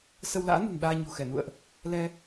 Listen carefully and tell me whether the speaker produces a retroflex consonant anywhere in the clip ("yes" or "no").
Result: no